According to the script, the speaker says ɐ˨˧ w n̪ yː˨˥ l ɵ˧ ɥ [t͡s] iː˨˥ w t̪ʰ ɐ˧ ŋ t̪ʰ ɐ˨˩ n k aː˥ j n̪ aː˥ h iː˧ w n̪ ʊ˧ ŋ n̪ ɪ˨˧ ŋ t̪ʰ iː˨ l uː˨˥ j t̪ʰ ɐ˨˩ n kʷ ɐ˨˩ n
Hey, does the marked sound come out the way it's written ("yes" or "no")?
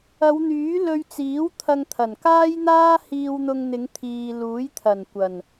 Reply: yes